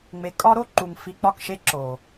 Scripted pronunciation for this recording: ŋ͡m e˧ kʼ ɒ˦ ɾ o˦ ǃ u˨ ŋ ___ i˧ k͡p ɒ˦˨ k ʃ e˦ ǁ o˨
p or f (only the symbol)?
f